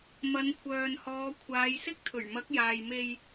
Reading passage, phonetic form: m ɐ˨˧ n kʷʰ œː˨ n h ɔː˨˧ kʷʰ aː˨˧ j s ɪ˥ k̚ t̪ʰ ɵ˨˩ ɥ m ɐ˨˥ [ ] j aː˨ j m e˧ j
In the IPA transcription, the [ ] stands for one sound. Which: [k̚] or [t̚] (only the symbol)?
k̚